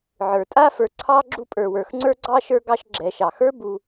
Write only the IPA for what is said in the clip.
ʕ ə˞˩ tʼ a˥ f ə˞˨ ǀʰ ɑ˦ ɡ͡ǁ u˦ pʼ ə˞˩ w ə˞˩ x ŋ͡ǀ ə˞˥ ɡ͡ǀ ɑ˥ ʃ ə˞˦ ɡ ɑ˦ ʃ ɡ͡ǁ ɛ˩ ʃ ɑ˩ x ə˞˥ b u˨

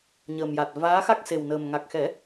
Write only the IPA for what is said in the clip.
ɲ əː˨˩ m j a˨˩ t̚ v aː˧˥ x a˦˥ k̚ s e˨˩ w n əː˨˩ m ŋ a˨˩ k̚ x ɛ˨˩˦

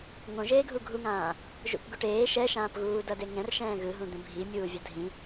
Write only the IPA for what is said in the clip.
ŋ õ ʒ eː ɡʱ u ɡʱ u ŋ ãː | ʒ ṵ p ɡ u ʈ eː ʃ ɛ ʃ ãː p ɣ uː d ʌ d e ŋ ɛ̃ r ʃ ɛ̃ː ɣ ɯ ɦ ũ d̪ ẽ bʱ i mʲ uː vʲ ʌ dʱ ĩ

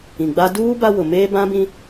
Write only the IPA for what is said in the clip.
ĩ˨ ɡ͡b a˦ d uː˦ b a˦ w ʊ˨ m eː˦ b ã˦ b ĩ˦

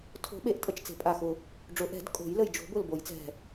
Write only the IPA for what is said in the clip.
tʰ o̤˨˩˦ ɓ e˨˩˦ ʔ tʼ ə˧˩ t͡ʃ t͡s e̤˨˩˦ pʼ a˧˩ x ʊ˧˩ | ɖ͡ʐ ʊ˨˩˦ ʔ ɛ̤˨˩˦ d kʼ o̤˨˩˦ j l ə˧˩ j d͡ʒ o̤˨˩˦ b ʊ˧˩ l b o˨˩˦ j t͡s ɛ̤˧˩

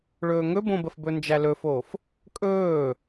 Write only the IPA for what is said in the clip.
ɭ ɵː ŋ ɵ b õ b ə f b ɵ n d͡ʒ æ l ɵ f oː f | kʼ ɵː

